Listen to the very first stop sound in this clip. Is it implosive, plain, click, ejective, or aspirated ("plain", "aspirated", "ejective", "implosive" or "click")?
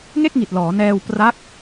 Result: plain